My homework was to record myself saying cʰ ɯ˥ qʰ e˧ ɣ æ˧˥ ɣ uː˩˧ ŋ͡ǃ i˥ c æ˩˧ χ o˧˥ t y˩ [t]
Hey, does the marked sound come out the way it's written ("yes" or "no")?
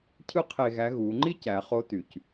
no